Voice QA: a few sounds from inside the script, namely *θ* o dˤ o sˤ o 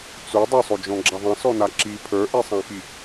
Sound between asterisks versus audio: incorrect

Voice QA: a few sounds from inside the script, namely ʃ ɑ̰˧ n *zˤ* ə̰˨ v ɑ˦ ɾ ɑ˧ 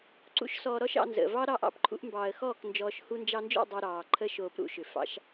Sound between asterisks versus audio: incorrect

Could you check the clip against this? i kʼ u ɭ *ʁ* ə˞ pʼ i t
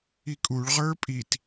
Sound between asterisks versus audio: correct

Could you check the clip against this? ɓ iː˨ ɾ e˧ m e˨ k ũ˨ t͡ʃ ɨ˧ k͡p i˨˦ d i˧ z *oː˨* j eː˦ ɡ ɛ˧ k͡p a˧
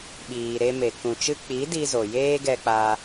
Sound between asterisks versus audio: incorrect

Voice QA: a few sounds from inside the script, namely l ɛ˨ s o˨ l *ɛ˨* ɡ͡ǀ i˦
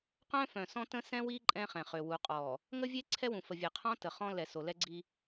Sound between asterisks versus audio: incorrect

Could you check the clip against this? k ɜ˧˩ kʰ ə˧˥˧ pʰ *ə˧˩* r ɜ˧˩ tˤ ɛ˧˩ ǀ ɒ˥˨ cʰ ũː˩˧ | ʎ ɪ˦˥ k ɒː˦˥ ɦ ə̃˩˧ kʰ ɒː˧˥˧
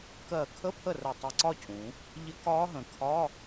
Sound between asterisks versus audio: correct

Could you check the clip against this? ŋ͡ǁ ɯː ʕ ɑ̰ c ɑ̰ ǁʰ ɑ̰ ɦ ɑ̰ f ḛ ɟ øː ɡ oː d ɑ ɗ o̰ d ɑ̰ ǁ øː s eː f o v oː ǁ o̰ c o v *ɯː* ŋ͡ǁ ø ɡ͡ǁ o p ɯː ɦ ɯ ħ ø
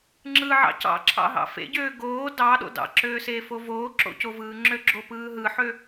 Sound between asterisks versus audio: correct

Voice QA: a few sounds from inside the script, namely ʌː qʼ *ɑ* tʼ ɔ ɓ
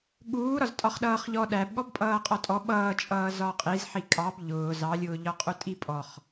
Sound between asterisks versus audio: incorrect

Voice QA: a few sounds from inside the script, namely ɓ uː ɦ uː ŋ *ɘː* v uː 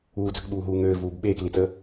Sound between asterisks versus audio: incorrect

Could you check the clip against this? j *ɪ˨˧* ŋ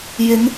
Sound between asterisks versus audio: correct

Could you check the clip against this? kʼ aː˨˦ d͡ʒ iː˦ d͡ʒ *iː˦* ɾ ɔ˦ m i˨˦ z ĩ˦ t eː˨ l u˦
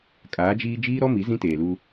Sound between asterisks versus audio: correct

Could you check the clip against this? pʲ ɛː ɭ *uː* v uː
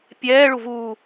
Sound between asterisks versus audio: incorrect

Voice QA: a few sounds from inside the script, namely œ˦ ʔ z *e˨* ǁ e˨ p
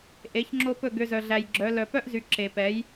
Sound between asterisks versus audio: incorrect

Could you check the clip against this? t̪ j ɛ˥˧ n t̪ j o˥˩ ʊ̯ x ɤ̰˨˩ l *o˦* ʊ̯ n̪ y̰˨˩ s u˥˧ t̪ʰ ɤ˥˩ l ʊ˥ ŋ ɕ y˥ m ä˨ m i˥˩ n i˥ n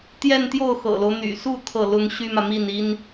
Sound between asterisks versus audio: correct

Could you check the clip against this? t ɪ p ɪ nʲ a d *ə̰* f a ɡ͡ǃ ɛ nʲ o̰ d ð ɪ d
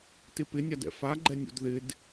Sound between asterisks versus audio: incorrect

